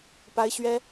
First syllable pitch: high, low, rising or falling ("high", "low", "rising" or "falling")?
high